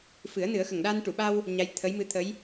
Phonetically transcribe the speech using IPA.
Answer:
f ɨ˨˩˦ ə̯ n ɨ˨˩˦ ə̯ x ə˨˩ ŋ ɗ a˧ n ʈ u˨˩˨ ɓ a˧ w | ɲ a˧˥ j t̪ʰ ə˧˥ j m ɨ˧˥ t̪ʰ ə˧˥ j

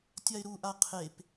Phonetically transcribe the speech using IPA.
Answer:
tʲ a ɪ̯ ɾ u ʔ a qʰ e p

